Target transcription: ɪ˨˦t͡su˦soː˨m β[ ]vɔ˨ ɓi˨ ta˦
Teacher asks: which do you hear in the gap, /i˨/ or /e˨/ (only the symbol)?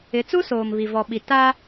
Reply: i˨